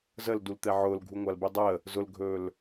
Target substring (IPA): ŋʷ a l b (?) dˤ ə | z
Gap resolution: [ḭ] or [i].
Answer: i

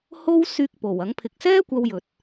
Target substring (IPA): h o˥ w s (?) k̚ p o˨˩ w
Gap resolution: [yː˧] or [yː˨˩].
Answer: yː˧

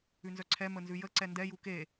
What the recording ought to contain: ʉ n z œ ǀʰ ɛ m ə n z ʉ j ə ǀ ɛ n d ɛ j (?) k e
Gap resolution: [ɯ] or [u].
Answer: u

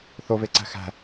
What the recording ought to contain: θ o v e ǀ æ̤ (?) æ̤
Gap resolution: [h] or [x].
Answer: x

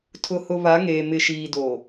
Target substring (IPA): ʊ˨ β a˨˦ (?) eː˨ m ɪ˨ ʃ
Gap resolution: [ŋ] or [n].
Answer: ŋ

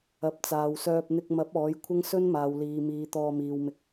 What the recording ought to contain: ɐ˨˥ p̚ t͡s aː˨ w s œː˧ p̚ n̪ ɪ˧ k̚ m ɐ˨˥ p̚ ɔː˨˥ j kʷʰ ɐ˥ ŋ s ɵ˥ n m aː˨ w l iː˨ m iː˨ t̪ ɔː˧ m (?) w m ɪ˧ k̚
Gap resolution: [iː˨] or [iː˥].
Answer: iː˨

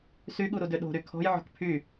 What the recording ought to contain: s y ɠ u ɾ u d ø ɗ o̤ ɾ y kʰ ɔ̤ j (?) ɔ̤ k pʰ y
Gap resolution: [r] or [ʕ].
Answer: ʕ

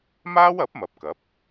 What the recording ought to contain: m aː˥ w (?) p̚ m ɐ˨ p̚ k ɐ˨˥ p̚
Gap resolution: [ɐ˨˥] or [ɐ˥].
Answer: ɐ˨˥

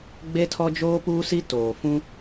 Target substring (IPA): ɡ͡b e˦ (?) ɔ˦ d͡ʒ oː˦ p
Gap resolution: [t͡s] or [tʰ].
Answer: tʰ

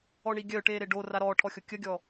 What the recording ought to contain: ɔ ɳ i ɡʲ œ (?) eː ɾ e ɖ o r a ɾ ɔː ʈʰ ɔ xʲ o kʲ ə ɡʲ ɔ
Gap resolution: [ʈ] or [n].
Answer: ʈ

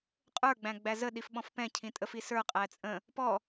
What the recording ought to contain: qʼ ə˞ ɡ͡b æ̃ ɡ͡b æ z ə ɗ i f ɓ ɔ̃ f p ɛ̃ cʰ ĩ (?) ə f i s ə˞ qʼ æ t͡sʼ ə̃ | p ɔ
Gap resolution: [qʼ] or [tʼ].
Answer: tʼ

